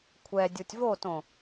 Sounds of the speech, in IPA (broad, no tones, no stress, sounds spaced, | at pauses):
kʷʰ ɛ dʲ u tʲ v o t õ